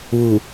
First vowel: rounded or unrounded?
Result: rounded